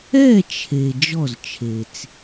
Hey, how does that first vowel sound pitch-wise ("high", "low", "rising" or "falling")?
falling